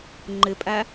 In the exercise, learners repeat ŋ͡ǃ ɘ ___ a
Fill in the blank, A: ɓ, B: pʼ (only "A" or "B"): B